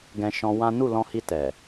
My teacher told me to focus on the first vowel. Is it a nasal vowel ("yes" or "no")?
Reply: yes